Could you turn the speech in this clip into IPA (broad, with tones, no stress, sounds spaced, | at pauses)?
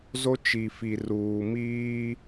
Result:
z o˦ t͡ʃ i˨ f i˨ r uː˨ m iː˦